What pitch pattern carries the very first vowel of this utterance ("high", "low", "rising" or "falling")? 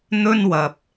high